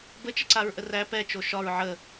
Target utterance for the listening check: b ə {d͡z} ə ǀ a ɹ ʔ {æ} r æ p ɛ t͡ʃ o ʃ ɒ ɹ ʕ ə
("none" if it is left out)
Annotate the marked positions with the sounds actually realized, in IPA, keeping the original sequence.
t͡ʃ, ə

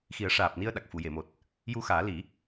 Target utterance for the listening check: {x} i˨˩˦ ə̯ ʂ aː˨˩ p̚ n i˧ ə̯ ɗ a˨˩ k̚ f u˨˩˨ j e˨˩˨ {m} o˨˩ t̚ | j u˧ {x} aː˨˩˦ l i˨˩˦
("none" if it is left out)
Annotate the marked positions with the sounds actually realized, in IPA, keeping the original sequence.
x, m, x

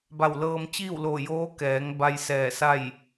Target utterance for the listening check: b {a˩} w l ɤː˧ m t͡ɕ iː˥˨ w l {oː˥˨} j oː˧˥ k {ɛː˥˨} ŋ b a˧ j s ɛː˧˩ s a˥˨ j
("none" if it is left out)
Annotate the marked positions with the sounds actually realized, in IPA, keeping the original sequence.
a˧˩, oː˧˩, ɛː˩˧

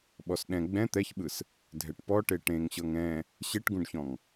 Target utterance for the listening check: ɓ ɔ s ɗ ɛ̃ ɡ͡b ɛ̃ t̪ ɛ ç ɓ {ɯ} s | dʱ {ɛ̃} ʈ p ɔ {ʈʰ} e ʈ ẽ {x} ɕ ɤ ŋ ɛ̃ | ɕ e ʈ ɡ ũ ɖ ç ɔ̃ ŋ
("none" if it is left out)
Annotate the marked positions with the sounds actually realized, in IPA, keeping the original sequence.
ɯ, ɛ, ʈ, ŋ

